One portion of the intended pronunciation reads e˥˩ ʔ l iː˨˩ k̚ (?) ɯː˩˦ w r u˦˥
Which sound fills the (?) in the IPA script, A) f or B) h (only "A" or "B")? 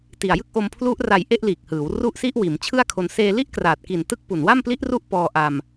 B